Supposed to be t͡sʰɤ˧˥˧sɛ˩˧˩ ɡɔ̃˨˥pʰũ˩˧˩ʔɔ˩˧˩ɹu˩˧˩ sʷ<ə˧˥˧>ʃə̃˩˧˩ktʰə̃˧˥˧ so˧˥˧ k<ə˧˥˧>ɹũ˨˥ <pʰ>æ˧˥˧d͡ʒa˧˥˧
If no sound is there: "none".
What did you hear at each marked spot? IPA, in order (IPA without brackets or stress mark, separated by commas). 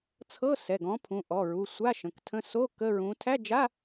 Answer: a˧˥˧, ə˧˥˧, tʰ